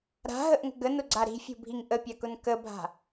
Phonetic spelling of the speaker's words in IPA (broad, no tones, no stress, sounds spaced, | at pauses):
ɾ a̤ ɦ ə ʔ ŋ ə̤ ɡ ə n ʊ ɡ͡ǀ a ɾ i̤ fʲ ṳ bʱ i ŋ ʔ ə pʲ a k ʊ n k ə bʱ a̤